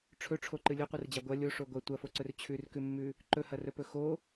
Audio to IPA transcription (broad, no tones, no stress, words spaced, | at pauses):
ʈ͡ʂʰɵʈ͡ʂʰoǃɨ lʲɵqʷɨrd͡ʑa ɡʷɐ lʲoʂo ɡʷɐ tʷɐfoǀɵr t͡ɕʰʉrkʉmːʉ | ǃɵhɐrɵpɵ xo